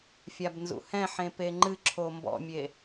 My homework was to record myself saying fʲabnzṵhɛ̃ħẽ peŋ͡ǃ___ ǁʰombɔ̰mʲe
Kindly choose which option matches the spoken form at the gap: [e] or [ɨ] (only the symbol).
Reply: ɨ